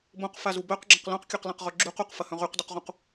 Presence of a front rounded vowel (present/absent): present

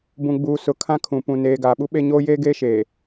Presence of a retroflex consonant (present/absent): absent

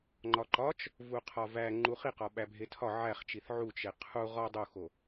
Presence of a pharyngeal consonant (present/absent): present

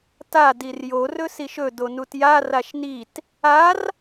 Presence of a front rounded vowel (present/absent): absent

